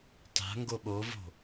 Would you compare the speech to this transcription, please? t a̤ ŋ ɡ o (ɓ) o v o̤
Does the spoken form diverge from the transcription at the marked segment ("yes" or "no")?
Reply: no